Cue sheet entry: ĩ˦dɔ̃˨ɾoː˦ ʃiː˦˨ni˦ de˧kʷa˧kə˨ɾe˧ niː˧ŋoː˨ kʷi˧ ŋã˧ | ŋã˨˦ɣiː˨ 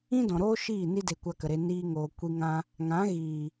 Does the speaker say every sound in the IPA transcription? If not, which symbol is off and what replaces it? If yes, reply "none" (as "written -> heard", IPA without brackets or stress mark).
none